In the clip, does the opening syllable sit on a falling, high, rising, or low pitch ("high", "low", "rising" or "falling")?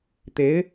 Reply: rising